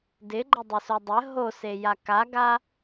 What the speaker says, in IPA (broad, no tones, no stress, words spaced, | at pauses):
dɪɡ͡ǃədˤɪso dˤə ɦoseja kaɡa